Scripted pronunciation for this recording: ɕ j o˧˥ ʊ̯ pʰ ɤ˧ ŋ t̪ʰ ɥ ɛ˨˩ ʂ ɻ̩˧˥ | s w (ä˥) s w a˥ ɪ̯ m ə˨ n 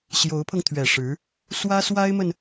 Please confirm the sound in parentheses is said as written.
yes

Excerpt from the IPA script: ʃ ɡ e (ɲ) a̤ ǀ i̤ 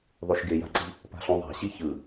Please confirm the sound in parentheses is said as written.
no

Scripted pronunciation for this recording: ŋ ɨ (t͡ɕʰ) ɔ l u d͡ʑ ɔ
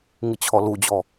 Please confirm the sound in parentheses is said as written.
yes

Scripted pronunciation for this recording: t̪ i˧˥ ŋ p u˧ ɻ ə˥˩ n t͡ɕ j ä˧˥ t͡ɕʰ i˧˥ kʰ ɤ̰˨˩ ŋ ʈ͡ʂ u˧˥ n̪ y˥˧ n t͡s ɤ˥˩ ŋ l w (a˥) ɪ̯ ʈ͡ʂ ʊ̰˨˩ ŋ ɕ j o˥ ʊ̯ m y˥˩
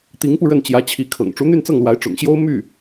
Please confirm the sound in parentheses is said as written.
no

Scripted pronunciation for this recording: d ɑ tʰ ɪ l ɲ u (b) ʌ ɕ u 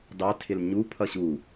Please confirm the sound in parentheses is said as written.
no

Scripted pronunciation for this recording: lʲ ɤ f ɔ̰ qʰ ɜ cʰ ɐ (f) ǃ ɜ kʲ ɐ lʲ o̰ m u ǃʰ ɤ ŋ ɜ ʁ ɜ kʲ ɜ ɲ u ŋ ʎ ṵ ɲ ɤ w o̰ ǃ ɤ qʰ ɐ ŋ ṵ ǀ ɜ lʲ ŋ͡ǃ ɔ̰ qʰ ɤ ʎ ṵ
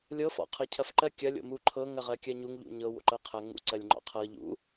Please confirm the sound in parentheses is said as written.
yes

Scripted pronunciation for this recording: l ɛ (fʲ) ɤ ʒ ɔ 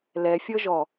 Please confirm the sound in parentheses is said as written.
yes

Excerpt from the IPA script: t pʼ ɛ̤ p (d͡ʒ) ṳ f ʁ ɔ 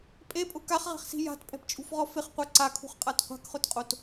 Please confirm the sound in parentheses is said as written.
no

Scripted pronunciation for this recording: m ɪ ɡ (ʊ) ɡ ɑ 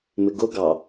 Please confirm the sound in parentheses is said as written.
yes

